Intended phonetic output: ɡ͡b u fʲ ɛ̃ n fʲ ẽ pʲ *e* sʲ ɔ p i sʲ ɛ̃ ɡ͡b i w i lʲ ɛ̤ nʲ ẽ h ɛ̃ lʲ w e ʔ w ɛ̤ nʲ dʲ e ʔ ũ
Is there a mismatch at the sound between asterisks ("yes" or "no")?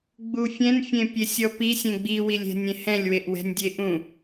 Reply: no